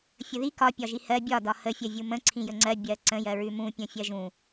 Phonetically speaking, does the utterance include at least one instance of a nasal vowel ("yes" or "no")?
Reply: yes